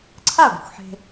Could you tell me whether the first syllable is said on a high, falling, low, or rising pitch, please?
falling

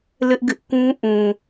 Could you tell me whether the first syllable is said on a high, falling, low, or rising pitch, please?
high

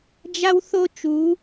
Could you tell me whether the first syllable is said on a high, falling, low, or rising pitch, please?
high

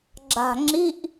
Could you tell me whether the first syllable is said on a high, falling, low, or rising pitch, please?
low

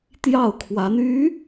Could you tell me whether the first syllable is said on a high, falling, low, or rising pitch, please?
falling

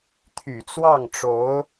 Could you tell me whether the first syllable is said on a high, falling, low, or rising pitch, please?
low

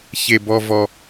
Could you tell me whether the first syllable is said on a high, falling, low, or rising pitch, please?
low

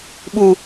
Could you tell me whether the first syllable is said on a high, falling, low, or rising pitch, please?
high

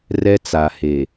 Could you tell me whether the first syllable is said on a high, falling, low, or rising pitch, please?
high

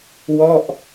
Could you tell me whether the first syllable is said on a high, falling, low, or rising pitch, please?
falling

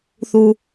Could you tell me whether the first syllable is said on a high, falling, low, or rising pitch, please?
low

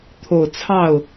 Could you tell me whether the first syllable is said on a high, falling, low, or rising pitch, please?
low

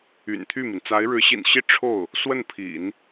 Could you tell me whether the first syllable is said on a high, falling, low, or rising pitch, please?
low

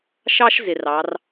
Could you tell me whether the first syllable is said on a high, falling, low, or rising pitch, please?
high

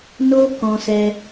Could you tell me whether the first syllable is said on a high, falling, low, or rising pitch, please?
high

